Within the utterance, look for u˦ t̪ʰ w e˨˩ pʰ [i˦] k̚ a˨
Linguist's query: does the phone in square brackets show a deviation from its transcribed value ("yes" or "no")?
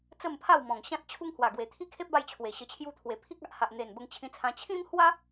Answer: no